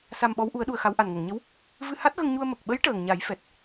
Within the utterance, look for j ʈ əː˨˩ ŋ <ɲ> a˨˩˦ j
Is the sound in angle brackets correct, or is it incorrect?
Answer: correct